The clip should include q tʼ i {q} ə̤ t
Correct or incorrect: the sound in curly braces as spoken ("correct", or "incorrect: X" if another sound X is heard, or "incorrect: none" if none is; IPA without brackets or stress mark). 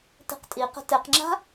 correct